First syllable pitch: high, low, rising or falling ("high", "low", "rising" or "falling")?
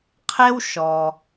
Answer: high